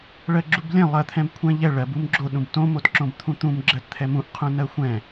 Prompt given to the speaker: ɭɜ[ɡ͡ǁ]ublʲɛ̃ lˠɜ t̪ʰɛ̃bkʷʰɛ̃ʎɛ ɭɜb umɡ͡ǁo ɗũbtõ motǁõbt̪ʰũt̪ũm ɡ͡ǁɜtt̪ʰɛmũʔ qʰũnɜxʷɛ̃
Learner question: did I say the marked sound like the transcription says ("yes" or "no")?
yes